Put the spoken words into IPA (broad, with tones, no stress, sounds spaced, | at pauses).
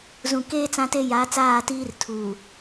z ũ˨ k eː˦ t͡s ã˦ t e˦ j a˨˦ t͡s aː˦˨ t iː˦ r tʰ uː˨